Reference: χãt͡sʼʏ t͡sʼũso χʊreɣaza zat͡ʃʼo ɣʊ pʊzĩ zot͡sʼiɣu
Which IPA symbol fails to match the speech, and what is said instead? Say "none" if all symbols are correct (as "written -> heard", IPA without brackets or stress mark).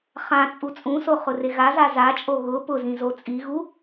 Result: ʏ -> u